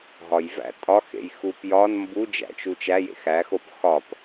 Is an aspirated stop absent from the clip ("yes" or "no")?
yes